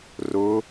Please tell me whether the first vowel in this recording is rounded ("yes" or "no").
yes